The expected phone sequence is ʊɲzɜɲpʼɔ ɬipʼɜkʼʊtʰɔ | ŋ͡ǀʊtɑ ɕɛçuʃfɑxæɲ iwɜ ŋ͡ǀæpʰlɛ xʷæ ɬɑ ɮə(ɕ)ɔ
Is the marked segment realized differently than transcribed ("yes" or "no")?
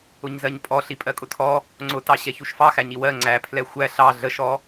yes